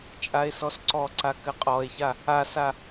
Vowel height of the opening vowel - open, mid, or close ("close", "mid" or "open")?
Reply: open